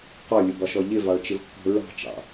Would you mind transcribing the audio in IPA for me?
qɔlʲʊbɒʃɔ ʎɪvɑɭt͡ʃɪvkːɔ̤ ɹɑ̤t͡ʃɑ̰

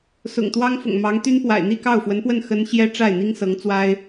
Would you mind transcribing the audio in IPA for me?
sʊ̰˨˩ŋt̪wɑ˥ŋfʊ̰˨˩ŋ mɑ˧˥ŋt̪y˥npwa̰˨˩ɪ̯ n̪i˥˧kɑ˥˩ʊ̯fwə˧˥npwə˥˩n xə˥n ɕjɛ˥ʈ͡ʂa˥˩ɪ̯n̪i˥ŋ sɤ˧˥ŋt͡swa˥ɪ̯

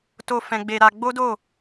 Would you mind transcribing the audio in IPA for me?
to˧ fɛ̃˧ɡ͡be˧ɾa˧ ɡ͡bo˦do˦˨

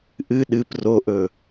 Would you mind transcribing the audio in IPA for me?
ʔɨ ɗɨp roʔɵ

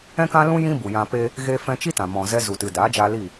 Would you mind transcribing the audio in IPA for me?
ɛ̃˦kã˦lũ˦ jĩ˦bu˨jã˧ pe˦ | ɣe˧fɛ̃˧t͡ʃi˦tã˨ mɔ̃˨zɛ˧ zu˨tɨ˨daː˨˦d͡ʒaː˧ li˦˨

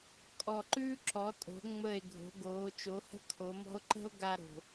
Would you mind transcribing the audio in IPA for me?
kʼɔ˨˩ǃʉː˦ ǁɔ˩˧tʼo̤˩˧ ŋ͡mə˨˩e̯ ɡʱo̤˩˧ɡoː˩˧ t͡ʃo˩˧hə̤˦ kʰo˩˧mɔ̤˦o̯ ǃə̤˦o̯ ɡa˦ɾo̤˨˩

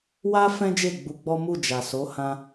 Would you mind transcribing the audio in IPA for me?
wa˦ fɛ̃˦d͡ʒe˦˨ ɡ͡bu˧ɡ͡bɔ˦ mu˦˨d͡ʒa˨so˨˦ hã˧

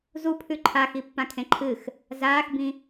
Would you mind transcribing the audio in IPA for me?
zupʰʉ ǃʰaxipːãkʰẽ ǃʰɨx | zaːxbĩ

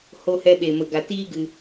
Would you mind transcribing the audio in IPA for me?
ho˧hɛ˧ɓe˨ mə˨ɡa˨tiː˦ ɡɨ˧

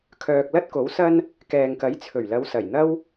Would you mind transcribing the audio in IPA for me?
kʰœː˨k̚ lɐ˥t̚ko˨˥wsɐ˥n | kɛː˨ŋkɐ˨˥jt͡sʰɵ˨˩ɥlɐ˨˧w sɐ˨˩jn̪ɐ˥w

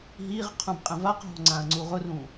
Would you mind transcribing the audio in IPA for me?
ɦiʁ qʰũbqʼɛ̃vaqɦɔ̤ ŋ͡ǀãɐ̯ŋ͡ǀuʁʊrũː

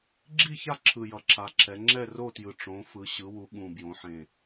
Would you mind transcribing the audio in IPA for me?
ɡ͡ǁi˥˨ça˥˨ ǁʰɯ˨˩jʌ˩˧ǁʰa˩˧ǁʰɛ˩˧ ŋ͡ǁɛ˥˨ro˥˨tjɯ˨˩ ʈ͡ʂõ˩˧fɯ˩˧ ɕɯ˩˧wu˩˧ ɠũ˨˩ bjõ˩˧ħẽ˨˩

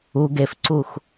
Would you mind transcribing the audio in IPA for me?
u ɡefǀux

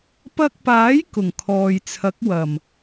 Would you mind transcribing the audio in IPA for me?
pɐ˧k̚paː˨˥j kʊ˨˩ŋkʰɔː˨jt͡sʰɐ˨˥k̚ wɐ˨˩m

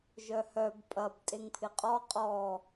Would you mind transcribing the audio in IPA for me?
ʒœhœb pʼɐb tʼeŋpʰɪqʼɔ qʼɔ

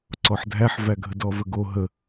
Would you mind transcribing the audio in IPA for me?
ǀɔħdʱæħvæ ɡʱədɔvəɡo ɦə

